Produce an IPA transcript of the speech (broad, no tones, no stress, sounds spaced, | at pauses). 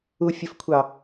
u fʲ ə f kʷʰ ɑ